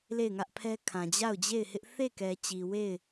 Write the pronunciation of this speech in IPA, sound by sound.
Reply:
l e˦˨ ɪ̯ ŋ ä˦ ʔ pʰ ɛ˦ kʰ ã˨ d͡ʑ a˦˨ ʊ̯ d͡ʑ e˦˨ ɪ̯ h ɪ˦ ʔ θ e˦˨ k ɛ˨ t͡ɕ i˨ w e˦˨ ɪ̯

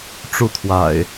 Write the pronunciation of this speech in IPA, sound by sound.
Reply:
ʈ͡ʂ u˥˨ t̪ʰ w a̰˨˩ ɪ̯

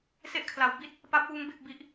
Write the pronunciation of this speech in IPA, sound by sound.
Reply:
s e˥˩ ʔ kʰ l a˩˦ w b i˥˩ t̚ | p a˦˥ p̚ w uː˦˥ ŋ b e˥˩ k̚ b i˥˩ ʔ

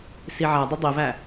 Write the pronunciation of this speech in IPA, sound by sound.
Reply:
s i ʕ æ dˤ ə dˤ i v æ

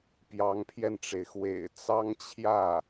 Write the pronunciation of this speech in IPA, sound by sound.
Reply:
p j ɑ˧˥ ŋ pʰ j ɛ˧ n ʈ͡ʂ e˩ ɪ̯ x w ḛ˨˩ ɪ̯ t͡s ɑ˥ ŋ t͡ɕʰ j ä˥˩

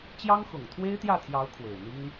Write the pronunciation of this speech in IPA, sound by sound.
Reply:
t͡ɕ j ɑ˥ ŋ x ʊ˨˩ ŋ t̪ʰ w e˥ ɪ̯ t̪ j ä˥˩ t̪ʰ j ɑ˧˥ ʊ̯ kʰ w e˨˩ ɪ̯ n̪ i˥ ŋ

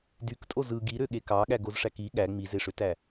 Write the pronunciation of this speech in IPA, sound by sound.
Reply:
d y k tʼ o z ɯ ɡ i ɾ ø ɠ e k ɑ ɠ æ ɡ o z ʂ æ k i ɠ æ ŋ͡m i z e ʂ ø t æ

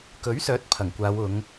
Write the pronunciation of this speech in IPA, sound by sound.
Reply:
k ɵ˨˥ ɥ s œː˨˥ t̚ pʰ ɐ˨˩ ŋ kʷ aː˨˧ w ʊ˨˧ ŋ

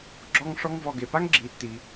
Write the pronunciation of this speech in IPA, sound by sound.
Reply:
ɡ͡ǁ ɔ˦ ŋ ʂ ɔ˦ ŋ v ɔ˨ ɡ e˩ p a˥ ŋ ɡ͡ǁ i˨ tː i˨

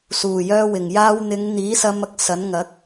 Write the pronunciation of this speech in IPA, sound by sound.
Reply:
s uː˨˩ j œː˧ w ɪ˨˩ ŋ j aː˧ w n̪ ɪ˨˧ ŋ n̪ iː˨˥ s ɐ˧ m ɐ˥ k̚ s ɐ˨˥ n ŋ ɐ˨˥ k̚

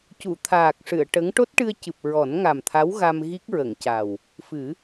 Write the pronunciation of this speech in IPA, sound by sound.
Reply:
c u˨˩˨ t̪ʰ aː˨˩ k̚ ʂ ɨ˨˩˨ ə̯ ʈ ə˧˥ ŋ ʈ o˦˥ t̚ ʈ ɨ˧ ə̯ c ɨ˨˩ p̚ ɹ ɔ˨˩˦ n ŋ a˨˩ m t̪ʰ a˧˥ w ɣ a˧ m ɣ i˦˥ k̚ ɹ ə˨˩˨ ŋ c a˨˩ w | f ɨ˨˩˦

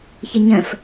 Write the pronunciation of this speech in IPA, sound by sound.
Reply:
ç ə ɲ ə̃ f

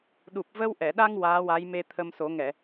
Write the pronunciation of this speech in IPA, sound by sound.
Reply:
ɗ u˨˩ p̚ v ə˧ w ʔ ɛ˨˩˨ ɗ a˧ ŋ w aː˧˥ w a˧˥ j m e˧ t̪ʰ ə˧ m s o˨˩˦ ŋ ɛ˨˩˨

